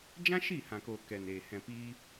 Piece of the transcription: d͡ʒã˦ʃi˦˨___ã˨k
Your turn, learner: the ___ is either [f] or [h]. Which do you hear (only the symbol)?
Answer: h